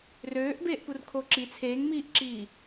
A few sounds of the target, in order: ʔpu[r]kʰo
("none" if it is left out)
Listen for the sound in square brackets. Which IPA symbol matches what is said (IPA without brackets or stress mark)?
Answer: r